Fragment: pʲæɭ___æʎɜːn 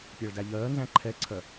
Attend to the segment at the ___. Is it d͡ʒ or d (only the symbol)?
d